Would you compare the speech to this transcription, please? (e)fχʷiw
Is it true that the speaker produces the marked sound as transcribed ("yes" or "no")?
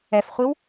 no